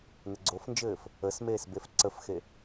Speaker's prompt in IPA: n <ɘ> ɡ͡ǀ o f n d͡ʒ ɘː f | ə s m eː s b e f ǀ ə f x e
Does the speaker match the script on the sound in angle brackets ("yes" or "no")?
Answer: yes